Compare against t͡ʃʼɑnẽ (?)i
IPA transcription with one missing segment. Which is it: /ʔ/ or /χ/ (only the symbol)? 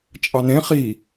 χ